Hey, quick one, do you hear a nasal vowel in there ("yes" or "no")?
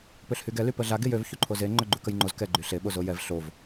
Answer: no